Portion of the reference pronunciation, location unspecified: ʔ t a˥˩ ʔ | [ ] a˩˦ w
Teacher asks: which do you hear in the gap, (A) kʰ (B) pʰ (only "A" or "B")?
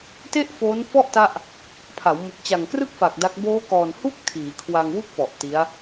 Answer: B